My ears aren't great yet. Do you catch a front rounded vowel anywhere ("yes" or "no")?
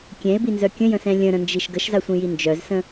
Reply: yes